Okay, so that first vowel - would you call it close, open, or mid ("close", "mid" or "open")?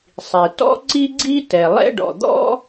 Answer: close